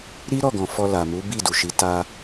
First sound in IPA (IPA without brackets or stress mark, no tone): ɾ